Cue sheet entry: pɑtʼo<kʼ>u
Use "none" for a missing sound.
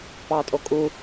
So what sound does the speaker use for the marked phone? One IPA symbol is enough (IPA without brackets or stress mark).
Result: kʼ